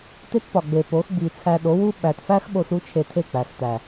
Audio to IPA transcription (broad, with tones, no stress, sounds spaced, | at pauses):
t e˦ t p ɒ˨ ɡ͡b e˨ p o˨˦ x ɡ͡b i˨ t͡sʰ æ˧ ɗ o˨˦ w u˦ ɓ æ˨ t f æ˦ x ɓ o˦ s u˦ t͡ʃʰ e˧ tʰ e˦˨ k͡p æ˨ x t æ˨